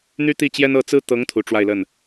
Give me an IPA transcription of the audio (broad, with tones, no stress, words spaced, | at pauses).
n̪y˥t̪i˥˩t͡ɕjɛ˥n ɤ˥ t͡sɹ̩˥ t̪ɤ˧˥ŋ t̪ʰu˧˥ʈ͡ʂwa˥˧ɪ̯lə˥˩n